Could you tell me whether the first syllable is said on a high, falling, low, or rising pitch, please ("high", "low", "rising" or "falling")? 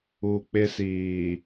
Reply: low